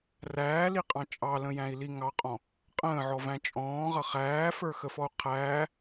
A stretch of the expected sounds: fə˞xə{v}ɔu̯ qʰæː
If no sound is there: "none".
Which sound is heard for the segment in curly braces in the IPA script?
f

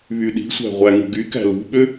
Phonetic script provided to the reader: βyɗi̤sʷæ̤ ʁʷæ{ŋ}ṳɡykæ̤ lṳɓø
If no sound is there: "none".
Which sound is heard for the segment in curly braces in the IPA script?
ŋ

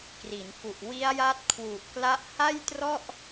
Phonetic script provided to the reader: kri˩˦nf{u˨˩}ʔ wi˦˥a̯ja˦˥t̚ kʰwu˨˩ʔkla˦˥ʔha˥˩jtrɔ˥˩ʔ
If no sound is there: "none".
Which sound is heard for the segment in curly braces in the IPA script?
u˨˩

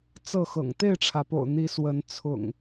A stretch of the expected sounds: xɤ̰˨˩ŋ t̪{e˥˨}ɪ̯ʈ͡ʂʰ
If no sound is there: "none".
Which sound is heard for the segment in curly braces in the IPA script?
e˥˨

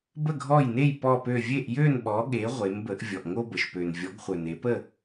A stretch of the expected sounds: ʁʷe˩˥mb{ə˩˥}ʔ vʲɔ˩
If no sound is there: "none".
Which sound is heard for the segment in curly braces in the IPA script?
ə˩˥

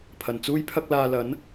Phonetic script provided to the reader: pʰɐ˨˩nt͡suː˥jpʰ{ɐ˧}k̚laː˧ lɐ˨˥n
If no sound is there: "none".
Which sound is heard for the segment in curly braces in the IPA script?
ɐ˥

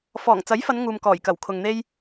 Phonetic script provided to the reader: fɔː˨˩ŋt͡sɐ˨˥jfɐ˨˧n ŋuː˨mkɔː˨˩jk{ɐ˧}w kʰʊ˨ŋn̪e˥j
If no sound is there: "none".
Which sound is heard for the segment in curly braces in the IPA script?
ɐ˨˩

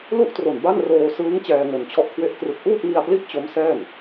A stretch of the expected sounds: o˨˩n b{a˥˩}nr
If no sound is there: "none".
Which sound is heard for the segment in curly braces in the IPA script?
a˥˩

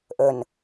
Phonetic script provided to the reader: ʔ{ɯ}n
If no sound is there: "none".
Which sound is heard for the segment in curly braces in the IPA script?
ə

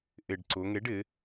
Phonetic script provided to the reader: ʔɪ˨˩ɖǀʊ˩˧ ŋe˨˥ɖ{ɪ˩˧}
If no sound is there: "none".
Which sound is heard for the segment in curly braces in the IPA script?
ɪ˩˧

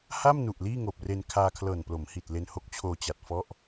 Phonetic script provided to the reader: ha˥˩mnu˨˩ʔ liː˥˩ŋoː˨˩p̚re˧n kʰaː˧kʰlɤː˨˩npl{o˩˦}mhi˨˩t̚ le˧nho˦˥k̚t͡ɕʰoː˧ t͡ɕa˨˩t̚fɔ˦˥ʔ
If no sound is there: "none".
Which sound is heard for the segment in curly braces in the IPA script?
o˩˦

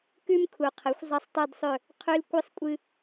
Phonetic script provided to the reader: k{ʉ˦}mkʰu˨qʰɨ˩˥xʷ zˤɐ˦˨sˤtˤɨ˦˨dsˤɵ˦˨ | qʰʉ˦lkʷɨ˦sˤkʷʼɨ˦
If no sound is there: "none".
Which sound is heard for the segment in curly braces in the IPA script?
ʉ˦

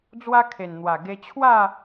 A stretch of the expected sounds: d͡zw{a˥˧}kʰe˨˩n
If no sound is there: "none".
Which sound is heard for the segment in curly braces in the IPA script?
a˦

